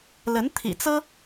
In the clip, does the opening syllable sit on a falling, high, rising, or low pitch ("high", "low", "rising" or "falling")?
rising